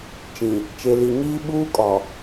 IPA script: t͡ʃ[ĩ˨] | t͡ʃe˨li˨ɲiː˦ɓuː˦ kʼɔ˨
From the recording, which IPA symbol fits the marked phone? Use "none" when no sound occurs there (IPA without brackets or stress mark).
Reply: ĩ˨